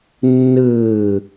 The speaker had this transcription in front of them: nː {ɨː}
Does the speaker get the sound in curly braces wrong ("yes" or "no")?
no